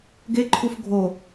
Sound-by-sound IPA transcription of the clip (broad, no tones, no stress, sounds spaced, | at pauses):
ɡ e ǃʰ u f ɡʱ o